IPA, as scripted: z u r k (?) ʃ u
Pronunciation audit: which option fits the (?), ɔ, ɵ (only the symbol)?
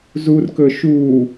ɵ